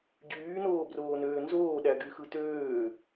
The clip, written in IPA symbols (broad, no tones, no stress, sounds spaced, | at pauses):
ɟ yː n oː b r oː n øː n z oː ɗ æ ɡ y x ɯ t øː